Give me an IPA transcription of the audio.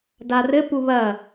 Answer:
d a r ɘ p u β ɐ

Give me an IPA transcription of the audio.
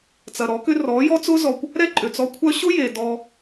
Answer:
t͡s ɐ˨ ɾ ɔ˨˦ k ʏ˦ r ɔ˨˦ j ɔ˦ t͡s ʊ˦ z ɔ˨ kʷ | ɾ ɛ˦ ǃʼ ʏ˨ t͡s ɔ˧ kʷʰ œ˦ ɕ ʊ˦ j e˨ d ɔ˧

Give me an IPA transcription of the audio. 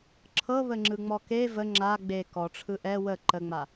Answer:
ǁʰ ɤ β ə ŋ͡ǁ ɯ ŋ͡m ɔ k e v ə ŋ͡ǁ a ɡ͡b e k ɔ ʈ͡ʂʰ ɯ ʔ ɛ w ə ǃ ə ŋ͡m a

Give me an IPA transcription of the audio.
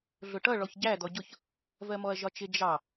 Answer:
ɮ ʊ ʈ ʌ ɭ ɔ ç ɟ æ d̪ ɔ ɟ ʊ ç | v ɜ m ɔ ɐ̯ ʒ ɒ t͡ʃ ɪ d͡ʒ ɑ

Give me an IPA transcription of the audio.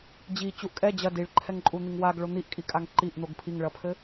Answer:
d͡ʑ i t͡ɕ u ʔ kʼ ɛ d͡ʑ ɐ d i ɭ ǃʰ ɛ ŋ ǃʼ u n̪ i ŋ w a ɡ ɭ o n̪ i ʔ kʼ i kʼ a ŋ ǃ i ʔ n̪ o ɡ pʰ i ŋ ɭ ɐ pʰ ɘ

